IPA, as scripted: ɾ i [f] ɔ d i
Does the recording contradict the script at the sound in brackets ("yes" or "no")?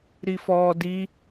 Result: no